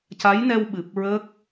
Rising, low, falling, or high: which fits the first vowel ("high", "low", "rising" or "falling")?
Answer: rising